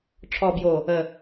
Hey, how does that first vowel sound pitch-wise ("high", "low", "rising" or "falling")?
low